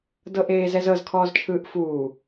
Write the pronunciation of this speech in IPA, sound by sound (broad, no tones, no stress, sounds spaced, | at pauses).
d ɤ ʔ eː z ɛ z ɤ z kʰ ɔː z t͡ʃʰ ɯː ʔ f uː